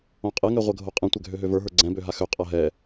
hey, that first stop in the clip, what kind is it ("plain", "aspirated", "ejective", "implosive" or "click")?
ejective